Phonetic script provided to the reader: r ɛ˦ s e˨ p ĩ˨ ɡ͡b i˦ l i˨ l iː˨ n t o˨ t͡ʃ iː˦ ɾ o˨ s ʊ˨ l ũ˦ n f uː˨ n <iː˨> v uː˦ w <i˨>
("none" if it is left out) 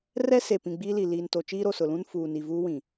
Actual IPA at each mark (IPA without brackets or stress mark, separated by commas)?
i˨, ĩ˨